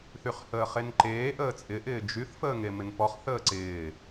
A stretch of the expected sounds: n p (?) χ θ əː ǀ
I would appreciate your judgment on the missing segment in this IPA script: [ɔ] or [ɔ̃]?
ɔ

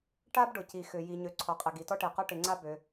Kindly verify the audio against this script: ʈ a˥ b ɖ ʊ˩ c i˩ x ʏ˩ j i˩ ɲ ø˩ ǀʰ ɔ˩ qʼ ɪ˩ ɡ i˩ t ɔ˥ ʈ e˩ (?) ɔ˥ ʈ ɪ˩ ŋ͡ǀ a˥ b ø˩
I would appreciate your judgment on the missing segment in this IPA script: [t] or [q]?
q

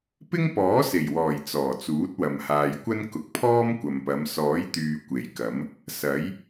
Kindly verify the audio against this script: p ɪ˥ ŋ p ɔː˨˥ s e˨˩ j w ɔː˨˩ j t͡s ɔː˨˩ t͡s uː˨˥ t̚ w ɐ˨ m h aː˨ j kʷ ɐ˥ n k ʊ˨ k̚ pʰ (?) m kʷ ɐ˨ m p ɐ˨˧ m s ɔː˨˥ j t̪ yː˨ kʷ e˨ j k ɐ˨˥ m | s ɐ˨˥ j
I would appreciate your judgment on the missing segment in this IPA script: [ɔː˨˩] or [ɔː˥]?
ɔː˥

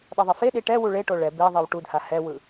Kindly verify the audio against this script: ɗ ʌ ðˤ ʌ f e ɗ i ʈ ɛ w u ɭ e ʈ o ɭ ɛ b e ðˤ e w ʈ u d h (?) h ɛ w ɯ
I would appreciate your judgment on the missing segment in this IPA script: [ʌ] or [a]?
a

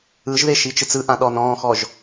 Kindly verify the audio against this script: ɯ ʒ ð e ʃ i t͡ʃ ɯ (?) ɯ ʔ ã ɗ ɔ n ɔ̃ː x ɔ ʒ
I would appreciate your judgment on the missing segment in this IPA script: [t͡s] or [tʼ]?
t͡s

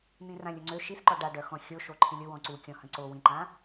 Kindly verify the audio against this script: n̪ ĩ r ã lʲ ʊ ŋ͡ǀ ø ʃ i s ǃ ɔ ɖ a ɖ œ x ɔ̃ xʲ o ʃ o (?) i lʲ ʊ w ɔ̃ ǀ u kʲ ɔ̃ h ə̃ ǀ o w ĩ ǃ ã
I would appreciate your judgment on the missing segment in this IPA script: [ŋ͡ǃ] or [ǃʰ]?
ǃʰ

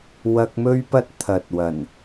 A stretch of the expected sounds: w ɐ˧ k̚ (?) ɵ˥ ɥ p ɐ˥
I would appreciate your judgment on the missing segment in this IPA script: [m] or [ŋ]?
m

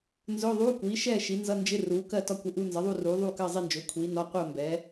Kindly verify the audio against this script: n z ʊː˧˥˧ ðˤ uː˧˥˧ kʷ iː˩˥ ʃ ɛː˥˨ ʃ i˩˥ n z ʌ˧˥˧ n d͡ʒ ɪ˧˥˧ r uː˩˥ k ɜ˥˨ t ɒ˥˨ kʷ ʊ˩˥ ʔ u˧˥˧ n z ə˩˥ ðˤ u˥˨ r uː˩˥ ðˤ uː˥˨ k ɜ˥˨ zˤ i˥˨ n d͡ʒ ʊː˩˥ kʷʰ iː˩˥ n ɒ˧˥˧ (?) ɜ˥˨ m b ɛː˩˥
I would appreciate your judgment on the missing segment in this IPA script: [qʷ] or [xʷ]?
qʷ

